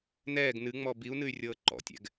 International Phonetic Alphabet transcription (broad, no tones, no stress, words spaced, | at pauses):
nɛːɡ nɨŋ͡mɔ biu̯nɨy̯rʲɤː ǃɔ̰tʲɛ̰ɡ